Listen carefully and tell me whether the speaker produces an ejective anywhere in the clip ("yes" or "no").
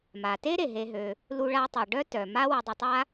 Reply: no